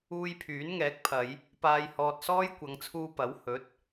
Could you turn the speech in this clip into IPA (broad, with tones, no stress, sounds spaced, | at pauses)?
uː˧ j pʰ yː˨˥ n ŋ ɛː˨˥ k̚ pʰ ɐ˨˧ j | p aː˨ j h ɔː˨ t̚ s ɔː˥ j kʷ ɐ˨˧ ŋ t͡sʰ uː˧ p ɐ˨˥ w h ɵ˨˥ t̚